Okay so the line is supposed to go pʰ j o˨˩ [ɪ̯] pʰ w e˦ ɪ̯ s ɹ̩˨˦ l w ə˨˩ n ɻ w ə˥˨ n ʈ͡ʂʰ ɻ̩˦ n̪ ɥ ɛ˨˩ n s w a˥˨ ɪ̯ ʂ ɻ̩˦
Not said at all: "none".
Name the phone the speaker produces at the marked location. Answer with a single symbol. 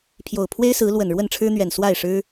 ʊ̯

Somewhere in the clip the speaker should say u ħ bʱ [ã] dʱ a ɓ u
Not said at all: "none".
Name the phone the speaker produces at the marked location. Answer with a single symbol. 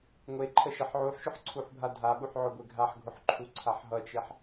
a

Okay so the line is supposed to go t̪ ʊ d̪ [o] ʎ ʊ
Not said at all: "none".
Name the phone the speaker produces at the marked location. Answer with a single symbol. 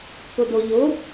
o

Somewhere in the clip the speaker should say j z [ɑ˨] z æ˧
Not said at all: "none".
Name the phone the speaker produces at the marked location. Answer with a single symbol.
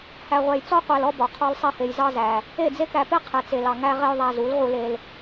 ɑ˦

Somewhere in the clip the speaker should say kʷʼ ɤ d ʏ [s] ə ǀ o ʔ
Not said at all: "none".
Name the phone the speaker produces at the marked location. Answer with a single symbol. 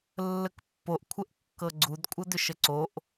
ʃ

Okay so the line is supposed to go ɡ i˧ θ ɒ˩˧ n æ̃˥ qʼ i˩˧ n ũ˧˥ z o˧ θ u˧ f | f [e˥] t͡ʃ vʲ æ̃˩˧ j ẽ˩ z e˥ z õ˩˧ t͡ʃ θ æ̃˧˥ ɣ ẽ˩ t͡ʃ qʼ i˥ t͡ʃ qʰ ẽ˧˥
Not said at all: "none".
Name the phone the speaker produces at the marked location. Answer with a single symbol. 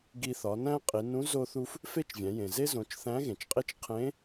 e˥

